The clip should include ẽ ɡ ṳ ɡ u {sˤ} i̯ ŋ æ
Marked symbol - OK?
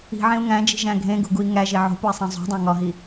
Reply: no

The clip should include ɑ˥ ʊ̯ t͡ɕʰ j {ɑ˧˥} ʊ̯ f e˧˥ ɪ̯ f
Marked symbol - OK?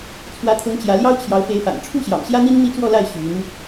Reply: yes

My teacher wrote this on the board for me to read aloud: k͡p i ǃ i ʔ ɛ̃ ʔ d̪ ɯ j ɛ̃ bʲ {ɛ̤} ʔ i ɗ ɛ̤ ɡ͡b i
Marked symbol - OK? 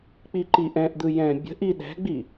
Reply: no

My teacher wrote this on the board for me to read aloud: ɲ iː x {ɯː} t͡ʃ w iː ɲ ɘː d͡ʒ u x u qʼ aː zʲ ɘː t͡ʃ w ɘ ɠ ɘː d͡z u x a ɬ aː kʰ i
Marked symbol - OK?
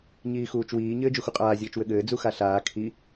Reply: no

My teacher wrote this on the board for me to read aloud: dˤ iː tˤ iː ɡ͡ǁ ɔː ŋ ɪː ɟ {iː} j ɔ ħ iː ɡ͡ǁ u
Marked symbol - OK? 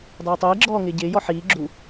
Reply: no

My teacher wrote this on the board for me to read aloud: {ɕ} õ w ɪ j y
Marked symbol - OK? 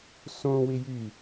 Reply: no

